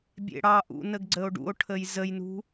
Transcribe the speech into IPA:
bʲ ḛ ɽ ɑ ʔ ṵ n ə ɡ ɡ͡ǀ ə o̯ ɖ ṵ o̯ ʈʰ ə j z ə j n ṳ

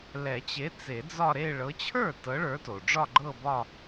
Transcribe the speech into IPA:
l ɛ˨˩˦ t͡ɕ e˨˦ t͡s e˨˩˦ d͡z ɒ˥˧ ɾ e˥˧ ɭ ɤ˨˦ t͡ɕʰ ə˞˥˩ t ɤ˨˦ ɭ ə˞˨˦ t o˩ ɖ͡ʐ ɒ˥˧ ɡ͡ǃ ɤ˥˧ b ɒ˥˧

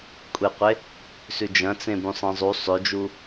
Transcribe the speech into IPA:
kʷʼ e qʷ e | s ʉ d͡ʒ ɐ̃ t͡s ẽ b ũ sˤ ẽ zˤ u sˤ ø d͡ʒ u

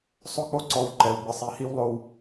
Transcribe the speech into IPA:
sˤ ʊ˦ k͡p o˦ ǀ ɔ˨ w ǃ ɛ˨ w ɡ͡b ɨ˨ sˤ i˨ h i˦ w lˠ o˨ w

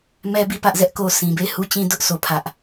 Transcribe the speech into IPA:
m ɛ˦ b i˦˨ p ä˦ ʔ z ɛ˦ ʔ k o˦ s ĩ˨ b e˦˨ ɪ̯ h u˦ t͡ɕ ĩ˦ d ʊ˦ ʔ s o˦ pʰ ä˦ ʔ

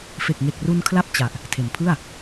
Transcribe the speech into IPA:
f e˨˩ k̚ ŋ e˨˩ k̚ r u˧ n kʰ l a˦˥ p̚ t͡ɕ a˨˩ ʔ | tʰ e˩˦ n pʰ ɯ˥˩ a̯

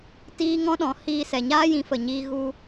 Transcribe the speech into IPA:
t iː˦ ŋ ɔ̃˦ ɗ ɔ̃˨˦ h iː˧ s ɛ˨ ɲ aː˦ j ĩ˨˦ f ə˨ ɲ iː˧ ɣ u˧

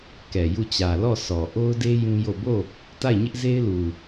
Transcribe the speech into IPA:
k ɛ˨ j u˦˨ t͡ɕ ä˨ l ɔ˦˨ sʰ ɔ˨ ʔ o˦ ʊ̯ d e˦ j ũ˦ j o˦˨ b o˦˨ | t a˦˨ ɪ̯ ɲ ɪ˦ ʔ z e˦ ɪ̯ l u˨

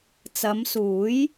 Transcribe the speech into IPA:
t͡s ɐ˨˧ m s uː˨˥ j

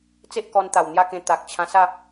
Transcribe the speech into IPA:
t͡s e˦ ʔ k ɔ˧ n t̪ a˨˩ w n̪ j a˥˧ k ẽ˧ t̪ a˨ k̚ t͡ɕʰ ã˧ s a˥˧

